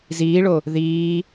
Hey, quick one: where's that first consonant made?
tongue tip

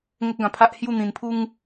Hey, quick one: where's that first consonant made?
velum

